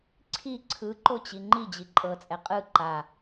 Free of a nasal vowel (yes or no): yes